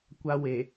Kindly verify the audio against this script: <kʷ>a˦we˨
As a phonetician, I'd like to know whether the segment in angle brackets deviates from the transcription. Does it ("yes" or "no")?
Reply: no